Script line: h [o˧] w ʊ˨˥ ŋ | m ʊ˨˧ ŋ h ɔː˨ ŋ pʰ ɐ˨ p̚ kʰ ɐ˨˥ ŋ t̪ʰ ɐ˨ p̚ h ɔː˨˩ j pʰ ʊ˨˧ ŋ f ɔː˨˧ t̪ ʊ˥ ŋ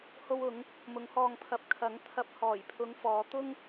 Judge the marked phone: correct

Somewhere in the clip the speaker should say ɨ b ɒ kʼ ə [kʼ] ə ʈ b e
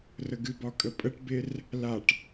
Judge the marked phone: incorrect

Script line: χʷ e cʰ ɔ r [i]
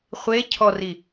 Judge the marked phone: correct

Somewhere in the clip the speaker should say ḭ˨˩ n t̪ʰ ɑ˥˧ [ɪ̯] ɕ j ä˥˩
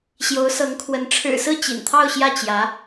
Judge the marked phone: incorrect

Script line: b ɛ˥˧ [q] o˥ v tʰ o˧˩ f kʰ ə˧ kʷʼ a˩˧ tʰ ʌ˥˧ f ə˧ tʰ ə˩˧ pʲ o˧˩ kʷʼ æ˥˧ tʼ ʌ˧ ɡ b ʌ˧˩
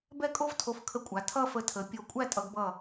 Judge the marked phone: incorrect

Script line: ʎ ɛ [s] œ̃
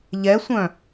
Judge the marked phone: incorrect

